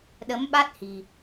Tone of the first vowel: rising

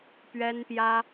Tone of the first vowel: high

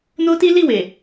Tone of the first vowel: high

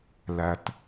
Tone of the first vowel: low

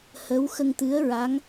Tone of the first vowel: rising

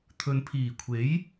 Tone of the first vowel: low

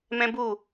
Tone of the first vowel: high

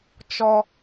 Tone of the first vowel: low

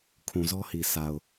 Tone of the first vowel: low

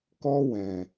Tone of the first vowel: high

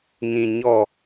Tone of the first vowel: low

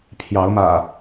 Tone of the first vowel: rising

